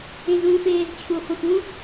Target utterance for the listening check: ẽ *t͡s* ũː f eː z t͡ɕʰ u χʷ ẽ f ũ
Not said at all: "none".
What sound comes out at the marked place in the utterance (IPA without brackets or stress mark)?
z